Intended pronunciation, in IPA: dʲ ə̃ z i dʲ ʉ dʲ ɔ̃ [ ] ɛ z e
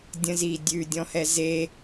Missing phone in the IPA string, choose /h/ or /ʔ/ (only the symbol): h